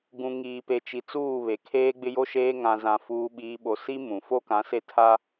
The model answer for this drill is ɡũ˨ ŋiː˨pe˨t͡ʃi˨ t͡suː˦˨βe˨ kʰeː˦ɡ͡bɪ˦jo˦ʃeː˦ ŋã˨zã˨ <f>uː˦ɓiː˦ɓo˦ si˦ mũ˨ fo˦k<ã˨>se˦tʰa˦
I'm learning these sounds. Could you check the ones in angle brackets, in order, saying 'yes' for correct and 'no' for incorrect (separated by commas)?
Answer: yes, no